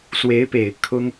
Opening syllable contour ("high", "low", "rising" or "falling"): rising